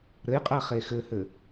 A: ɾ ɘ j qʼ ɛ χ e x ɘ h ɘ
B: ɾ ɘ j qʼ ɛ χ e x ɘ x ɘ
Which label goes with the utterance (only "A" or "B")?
A